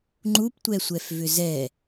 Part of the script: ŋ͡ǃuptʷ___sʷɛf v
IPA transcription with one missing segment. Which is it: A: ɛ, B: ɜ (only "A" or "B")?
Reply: A